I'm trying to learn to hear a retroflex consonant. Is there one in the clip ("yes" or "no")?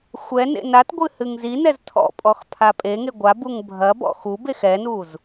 no